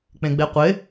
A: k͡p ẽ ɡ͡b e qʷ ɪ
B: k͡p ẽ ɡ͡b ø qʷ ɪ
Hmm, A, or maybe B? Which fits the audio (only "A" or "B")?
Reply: A